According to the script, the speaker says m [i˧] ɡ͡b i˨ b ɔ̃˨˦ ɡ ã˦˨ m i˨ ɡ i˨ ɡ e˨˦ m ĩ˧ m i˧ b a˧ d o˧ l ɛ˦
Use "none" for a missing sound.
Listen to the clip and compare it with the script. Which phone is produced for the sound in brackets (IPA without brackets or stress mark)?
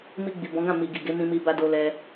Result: i˧